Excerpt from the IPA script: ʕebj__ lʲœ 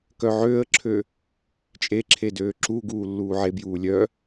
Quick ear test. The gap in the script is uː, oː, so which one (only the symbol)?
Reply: uː